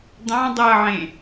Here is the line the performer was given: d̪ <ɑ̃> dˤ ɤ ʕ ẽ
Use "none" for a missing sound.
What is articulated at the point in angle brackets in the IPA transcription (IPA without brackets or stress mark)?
ɑ̃